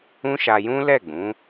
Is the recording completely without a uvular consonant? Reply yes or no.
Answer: yes